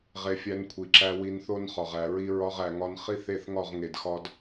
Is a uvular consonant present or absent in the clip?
present